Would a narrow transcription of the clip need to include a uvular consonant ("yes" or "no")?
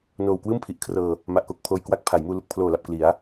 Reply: no